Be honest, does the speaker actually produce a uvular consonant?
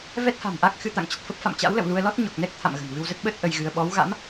no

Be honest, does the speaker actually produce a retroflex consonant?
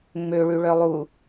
yes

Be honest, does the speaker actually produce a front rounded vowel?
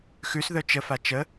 yes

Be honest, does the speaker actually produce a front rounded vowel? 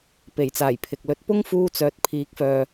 yes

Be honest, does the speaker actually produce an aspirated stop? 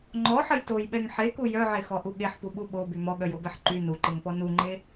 no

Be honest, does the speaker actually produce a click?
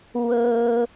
no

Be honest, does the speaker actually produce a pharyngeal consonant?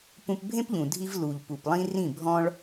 no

